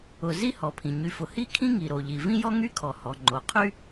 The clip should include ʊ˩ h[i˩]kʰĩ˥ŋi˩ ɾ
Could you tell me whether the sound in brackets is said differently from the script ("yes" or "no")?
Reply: yes